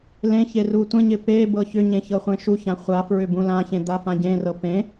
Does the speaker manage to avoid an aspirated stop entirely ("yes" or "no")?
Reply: yes